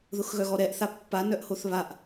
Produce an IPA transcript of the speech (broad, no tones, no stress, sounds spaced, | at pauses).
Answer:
ð ʊ x ɣ œ ɣ ɔ ɾ ɛ ʔ θ a pː a n œ ʔ h o θ β a ʔ